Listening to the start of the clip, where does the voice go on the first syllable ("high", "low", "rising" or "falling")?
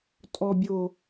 low